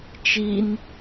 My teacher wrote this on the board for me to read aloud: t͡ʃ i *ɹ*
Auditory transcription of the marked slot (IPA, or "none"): n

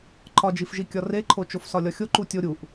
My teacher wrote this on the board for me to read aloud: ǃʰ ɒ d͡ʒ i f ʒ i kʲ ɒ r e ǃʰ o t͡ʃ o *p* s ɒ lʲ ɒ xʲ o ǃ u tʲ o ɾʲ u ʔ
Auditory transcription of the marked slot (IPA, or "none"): f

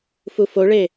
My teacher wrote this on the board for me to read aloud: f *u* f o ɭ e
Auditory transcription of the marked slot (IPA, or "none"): u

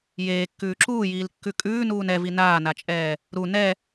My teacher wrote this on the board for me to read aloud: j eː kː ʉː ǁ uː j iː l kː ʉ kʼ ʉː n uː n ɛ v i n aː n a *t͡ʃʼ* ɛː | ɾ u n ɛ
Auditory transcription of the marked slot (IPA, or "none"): t͡ʃʼ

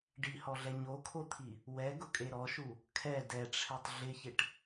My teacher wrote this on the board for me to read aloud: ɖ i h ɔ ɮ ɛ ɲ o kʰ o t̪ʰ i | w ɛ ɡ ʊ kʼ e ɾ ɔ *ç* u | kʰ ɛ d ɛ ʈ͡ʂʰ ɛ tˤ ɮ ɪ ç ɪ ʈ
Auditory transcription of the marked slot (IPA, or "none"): ʃ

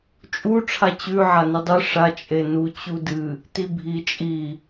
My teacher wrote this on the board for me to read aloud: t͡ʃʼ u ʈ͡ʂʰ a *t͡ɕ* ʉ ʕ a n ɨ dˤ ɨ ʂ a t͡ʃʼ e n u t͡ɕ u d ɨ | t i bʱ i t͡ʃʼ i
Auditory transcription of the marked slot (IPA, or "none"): t͡ɕ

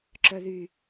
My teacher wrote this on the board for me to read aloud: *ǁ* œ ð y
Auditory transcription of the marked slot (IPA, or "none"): ǁ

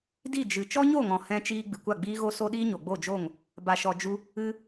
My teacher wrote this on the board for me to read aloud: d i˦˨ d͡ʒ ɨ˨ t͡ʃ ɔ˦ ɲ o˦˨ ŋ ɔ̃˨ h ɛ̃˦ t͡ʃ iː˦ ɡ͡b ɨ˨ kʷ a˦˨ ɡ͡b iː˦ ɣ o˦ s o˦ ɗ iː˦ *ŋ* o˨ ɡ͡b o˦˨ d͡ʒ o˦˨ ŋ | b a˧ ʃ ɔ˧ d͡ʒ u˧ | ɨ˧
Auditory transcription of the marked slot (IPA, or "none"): ɲ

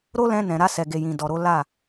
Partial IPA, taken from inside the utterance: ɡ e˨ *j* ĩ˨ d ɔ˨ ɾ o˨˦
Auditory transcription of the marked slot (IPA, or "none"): j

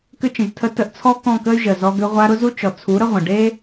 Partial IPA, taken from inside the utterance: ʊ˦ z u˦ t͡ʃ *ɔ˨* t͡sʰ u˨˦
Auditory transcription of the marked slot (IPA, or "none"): ɔ˨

